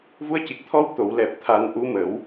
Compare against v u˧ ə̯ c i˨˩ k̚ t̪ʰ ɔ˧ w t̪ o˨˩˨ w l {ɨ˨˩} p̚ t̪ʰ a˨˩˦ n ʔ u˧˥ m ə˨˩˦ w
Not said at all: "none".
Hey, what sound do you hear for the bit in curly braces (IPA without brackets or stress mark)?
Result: ɛ˨˩